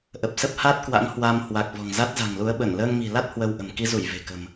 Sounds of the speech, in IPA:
ʔ ə˨˩ p̚ s ə˦˥ p̚ h a˦˥ t̚ k w a̰˧˥ ŋ h w a˧ m h w a˨˩ k̚ v ɔ̤˨˩ ŋ z a˦˥ t̚ z a̤˨˩ ŋ l u˨˦ ə̯ ɓ ə˧˩ n l əː˧ ŋ m i̤˨˩ l a˦˥ t̚ h w ə˧ w ʔ ə̤˨˩ m k i˧ z u˧˩ j v e̤˨˩ k ə̤˨˩ m

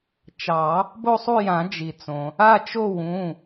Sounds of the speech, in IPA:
t͡ʃ ɑ˨˩˦ | b o˥˧ sˤ u˥˧ j ã˨˩˦ d͡ʒ i˩ t͡s õ˩ | a˥˧ t͡ʃ o˥˧ w ũ˩˧˩

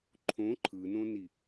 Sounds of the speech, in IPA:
ǃʰ õ ǃʰ ɯ n õ n i

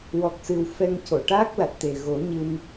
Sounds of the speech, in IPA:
w ɔ˨˩ k̚ s ɨ˨˩ w f ɛ˧ ŋ c o˨˩˨ ʈ aː˦˥ k̚ l a˨˩ t̚ t̪ e˨˩ ɣ o˨˩˦ ɲ ɨ˧ n

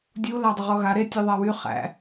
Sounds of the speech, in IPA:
dʲ u l a dˤ ɪ ʁ ɔ ɣ a ɾ e tʲ e ðˤ a w y χ æ̰

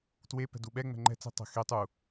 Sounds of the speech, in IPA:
t w e p ɛ̤ d u ɓ ɛ ŋ͡m ɛ̤ ŋ͡ǃ ɛ̤ t͡s i̤ tˤ ɛ̤ x e tˤ u

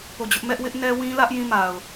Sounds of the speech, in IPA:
p o˦˨ d͡ʑ ʊ˦ ʔ m ɛ˦ ʔ w ɪ˦ ʔ n ɛ˦ w ĩ˦ l ä˦ ʔ j ĩ˦˨ m a˨ ʊ̯

